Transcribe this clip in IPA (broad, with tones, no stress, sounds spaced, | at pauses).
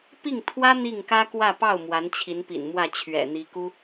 p i˥˩ ŋ t̪ʰ w ä˥ n̪ i˥˩ ŋ k ä˥ k w ä˥˧ p ɑ˥˩ ʊ̯ m w a˧˥ n t͡ɕʰ i˧˥ n p ḭ˨˩ n m w ä˥˩ t͡ɕʰ ɥ ɛ̰˨˩ n̪ i˧˥ k u˥